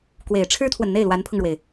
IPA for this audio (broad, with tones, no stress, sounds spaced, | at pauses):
k w e˨˩ ɪ̯ ʈ͡ʂʰ ɻ̩˥ t̪ʰ w ə˨ n n̪ e˥˩ ɪ̯ l w a˧˥ n pʰ ʊ˧ ŋ ɻ w e˩ ɪ̯